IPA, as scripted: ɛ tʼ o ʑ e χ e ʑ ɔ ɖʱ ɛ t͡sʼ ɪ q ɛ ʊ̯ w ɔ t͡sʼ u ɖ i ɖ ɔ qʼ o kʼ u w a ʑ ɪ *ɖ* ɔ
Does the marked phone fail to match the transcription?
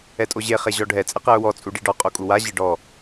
no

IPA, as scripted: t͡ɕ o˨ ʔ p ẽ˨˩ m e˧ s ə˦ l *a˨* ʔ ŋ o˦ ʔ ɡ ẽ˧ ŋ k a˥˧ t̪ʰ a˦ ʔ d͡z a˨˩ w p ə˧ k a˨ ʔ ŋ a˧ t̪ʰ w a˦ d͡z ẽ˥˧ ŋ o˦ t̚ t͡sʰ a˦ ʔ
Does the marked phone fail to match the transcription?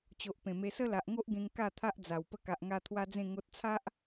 no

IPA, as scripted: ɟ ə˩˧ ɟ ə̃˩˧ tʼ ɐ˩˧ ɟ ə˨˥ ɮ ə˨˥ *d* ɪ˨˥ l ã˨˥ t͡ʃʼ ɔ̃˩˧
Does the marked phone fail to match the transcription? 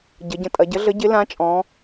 yes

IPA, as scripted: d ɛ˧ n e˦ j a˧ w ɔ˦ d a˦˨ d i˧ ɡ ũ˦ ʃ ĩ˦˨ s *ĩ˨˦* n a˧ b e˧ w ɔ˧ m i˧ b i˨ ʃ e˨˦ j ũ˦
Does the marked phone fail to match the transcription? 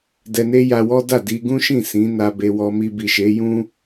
no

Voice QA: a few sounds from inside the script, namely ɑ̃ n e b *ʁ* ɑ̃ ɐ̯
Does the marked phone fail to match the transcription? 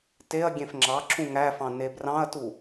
yes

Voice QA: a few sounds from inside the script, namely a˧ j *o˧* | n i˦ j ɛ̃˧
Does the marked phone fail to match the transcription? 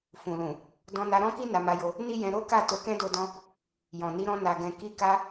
no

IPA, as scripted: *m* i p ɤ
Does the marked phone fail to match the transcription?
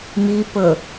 no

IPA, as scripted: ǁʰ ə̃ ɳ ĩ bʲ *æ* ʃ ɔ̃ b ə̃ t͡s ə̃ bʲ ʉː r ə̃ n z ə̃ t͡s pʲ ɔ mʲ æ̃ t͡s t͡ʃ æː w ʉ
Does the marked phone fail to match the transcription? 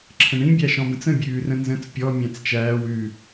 no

